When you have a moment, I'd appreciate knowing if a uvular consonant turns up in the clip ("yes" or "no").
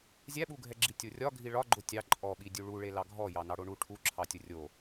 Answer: no